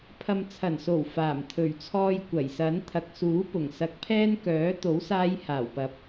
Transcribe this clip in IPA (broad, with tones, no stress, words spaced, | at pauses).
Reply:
pʰɐ˨mt͡sʰɐ˨˩nso˨˩w faː˨˩m t̪ʰɵ˨˩ɥt͡sʰɔː˧j kʷɐ˨˩jsɐ˨˥n t̪ʰɐ˨˥k̚suː˨˥ pʊ˨˩ŋsɐ˨˥k̚pʰɛː˥n kœː˨˥ t̪o˨˥wsaː˧j haː˨˩wpɐ˨˥p̚